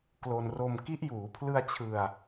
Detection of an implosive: absent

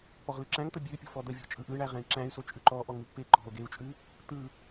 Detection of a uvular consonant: present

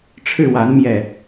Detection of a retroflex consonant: present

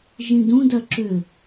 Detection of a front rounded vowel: present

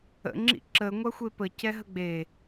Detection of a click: present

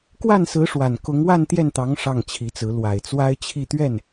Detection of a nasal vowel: absent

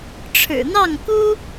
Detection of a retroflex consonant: present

